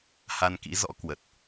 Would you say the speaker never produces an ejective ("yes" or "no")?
yes